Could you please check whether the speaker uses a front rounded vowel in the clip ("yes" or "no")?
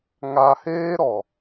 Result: no